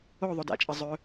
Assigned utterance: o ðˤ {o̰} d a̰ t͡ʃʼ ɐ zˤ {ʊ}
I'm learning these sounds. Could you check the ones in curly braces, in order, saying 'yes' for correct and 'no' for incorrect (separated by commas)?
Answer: no, no